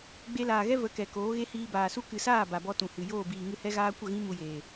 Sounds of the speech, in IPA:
ɡ͡b e˧ l aː˨ ɣ ɛ˦ v ə˨˦ k ɛ˨ k oː˨˦ ɣ e˦ h iː˧ b aː˨ s u˦ k ɨ˨ s aː˦˨ b a˨ b ɔ˧ t ũ˨ h ɨ˨ j oː˦˨ b iː˨ ŋ ɨ˦ h ɛ˦ ɣ aː˦ kʷ ə˦˨ ɣ ĩ˦ m u˧ j eː˨

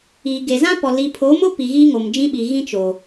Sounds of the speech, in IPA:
i˨ ɡ e˨ z ã˦ p ɔ˨ l i˨ pʰ o˨˦ m ʊ˦ p i˨ ɣ iː˦ ŋ o˨ m d͡ʒ ĩ˦ ɓ i˨ ɣ ĩ˦ t͡ʃ o˨

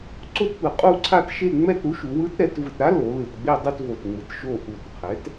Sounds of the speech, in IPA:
ǀ o˥˧ t p ɯ˨˩ qʼ u˥˧ ǀʰ a˥˧ t ʃ e˥˧ ŋ͡m ɛ˥˧ t ɾ u˩˥ ʃ u˩˧ w ɯ˧˥ t ɾ ɛ˩˧ t v ɯ˨˩ t ɾ a˧˥ l o˩˧ l ɯ˨˩ t ɡ͡b e˥˧ dˤ e˥˧ t v o˨˩ t ŋ͡m ɯ˩˧ t ʃ o˨˩ ʔ u˨˩ t qʰ ɛ˩˥ t

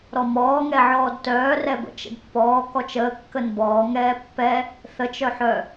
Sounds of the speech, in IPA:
ɾ ɔ m ɔː ŋ ɛ ʕ ɔː d t œː r ɛ b ə̰ t͡ʃ ə̰ d pː ɔː k ɔ t͡ʃ əː kː ə n b ɔː ŋ ɛː pː ɛ | θ ə t͡ʃ œ ħ œ

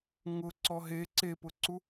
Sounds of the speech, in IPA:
ŋ ʊ ǀ ɔ ɦ e ǀ e p ʊ ǀ u

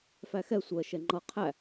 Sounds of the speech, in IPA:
f æ x ɛ sʷ ɜ ʃ ɛ ŋ͡ǃ ʌ qʰ æ

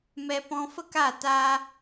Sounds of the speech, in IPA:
m ɛ˧ p ɔ̃˧ f ə˦ k a˦˨ t a˧

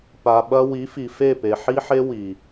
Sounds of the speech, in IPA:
p a˨ ɓ ɐ˦ w i˨˦ f i˨ f e˦˨ p e˨ ħ i˦ ħ e˦ w i˨

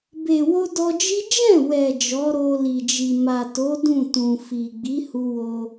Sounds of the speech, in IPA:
b e˨ w o˧ d ɔ˧ d͡ʒ i˦ d͡ʒ ɛ̃˦˨ w ɛ˨ d͡ʒ ɔ˨˦ ɾ o˧ l i˨ d͡ʒ i˨ m a˨ t o˨˦ d ũ˦˨ t ũ˨ f i˨ ɡ͡b i˨˦ h u˧ w o˧

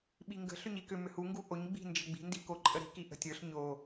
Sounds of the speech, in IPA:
ɓ i ŋ ɡ ə̤ ɬ ʏ ɲ i k ʏ m ʏ h u ŋ ɡ u ʔ o ɲ ɡ͡b i̤ n d͡ʒ ə ɡ͡b i̤ n d i k o ǃʼ ə ɾ i̤ k i ʔ ə̤ tʲ ə˞ ɬ ɲ o

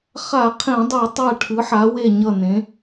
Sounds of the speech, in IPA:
χ a˧˩˧ qʰ ẽ˧˩˧ dˤ u˧˩˧ tˤ a˧˩ ʈʰ ɯ˩˧ ħ a˩˧ w e˧˩ ɲ ʌ˧˩ n ẽ˩˧

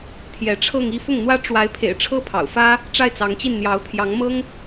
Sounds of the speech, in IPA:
t̪ʰ j ɛ˧˥ ʈ͡ʂʰ ɤ˥˧ ŋ i˥˧ f ʊ˥˩ ŋ n̪ w ä˥ ʈ͡ʂ w a˧˥ ɪ̯ pʰ ḛ˨˩ ɪ̯ ʈ͡ʂʰ ɤ˥ pʰ ɑ̰˨˩ ʊ̯ f ä˥ | ʈ͡ʂ a˥˩ ɪ̯ t͡s ɑ˧˥ ŋ t͡ɕ i˥˩ n n̪ j ɑ˧˥ ʊ̯ t̪ʰ j ɑ˧˥ ŋ m ɤ˥ ŋ

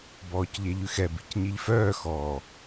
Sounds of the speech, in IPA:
b ɔː c ʎ e ʎ ʉ x ɛ b i̤ c ɲ i ʎ f œː x ɔː

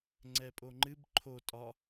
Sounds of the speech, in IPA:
ŋ͡ǀ ɛ pʼ o ŋ͡ǃ ɨ b ǃʰ o tʼ ɒ

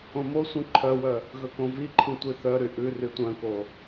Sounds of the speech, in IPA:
õ m o sʷ ĩ ǃʰ œ w œ | ɣ ɵ k õ v i ǃʰ ĩ tʷ i θ œ ɾ y ʔ ʉ r y tʷ œ̃ k o

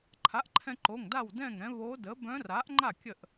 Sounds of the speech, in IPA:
ǃʰ a˩˥ ʔ ǃʰ ɛ̃˧ ǃ o˩˧˩ ŋ d a˥˩ w d ɛ̃˥˩ ŋ ɾ ɛ̃˩˥ β o˧˥ d ə˩˥ b œ̃˧˥ r a˩˥ ʔ ŋ͡ǃ a˥˩ kʲ ə˥˩ ʔ

